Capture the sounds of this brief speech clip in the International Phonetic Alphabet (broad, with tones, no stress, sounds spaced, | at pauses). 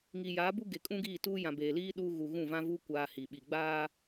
ŋ iː˨ j aː˨˦ b u˦ ɡ e˨ kʼ ũ˦ ɡ iː˦˨ t uː˦ j ã˨ b eː˨ l iː˦ ɗ uː˦ ɣ u˨ ɣ ũ˦˨ v ã˦ v uː˦ kʷ aː˦ h i˨ ɓ i˨ ɡ͡b aː˦